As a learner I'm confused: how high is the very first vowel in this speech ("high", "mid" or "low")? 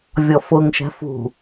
mid